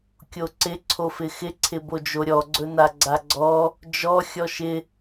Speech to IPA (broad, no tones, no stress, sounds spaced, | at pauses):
kʲ o ǀ ɪ ǀʰ o f ɪ x ɪ ǀʰ ɪ b o d͡ʒ o ɾʲ ɔ ɡ͡ǀ ɵ n a ɡ͡ǀ a ɡ͡ǀ ɔ | d͡ʒ ɔ xʲ ɔ ʃ ɪ